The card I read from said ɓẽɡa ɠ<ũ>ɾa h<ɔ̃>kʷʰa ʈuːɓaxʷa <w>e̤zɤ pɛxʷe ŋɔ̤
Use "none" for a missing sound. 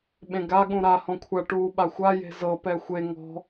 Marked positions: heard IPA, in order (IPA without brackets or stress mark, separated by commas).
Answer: ũ, ɔ̃, j